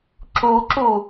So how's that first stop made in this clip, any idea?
click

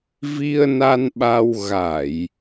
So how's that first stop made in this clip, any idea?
implosive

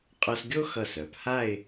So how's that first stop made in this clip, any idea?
ejective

